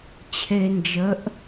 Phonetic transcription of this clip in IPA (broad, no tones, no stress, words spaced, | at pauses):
t͡ɕʰe nd͡ʒəʔ